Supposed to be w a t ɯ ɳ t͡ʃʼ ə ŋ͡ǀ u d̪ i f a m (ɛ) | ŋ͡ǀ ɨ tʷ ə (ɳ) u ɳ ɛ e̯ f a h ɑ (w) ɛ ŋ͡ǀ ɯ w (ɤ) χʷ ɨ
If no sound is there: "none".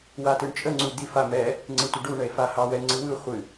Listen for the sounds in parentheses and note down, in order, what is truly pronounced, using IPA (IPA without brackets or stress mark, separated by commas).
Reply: ɛ, ɖ, w, ɯ